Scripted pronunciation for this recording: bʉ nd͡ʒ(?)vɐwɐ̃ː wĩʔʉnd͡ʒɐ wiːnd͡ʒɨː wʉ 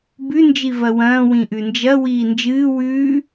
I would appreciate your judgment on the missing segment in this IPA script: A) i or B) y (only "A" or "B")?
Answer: A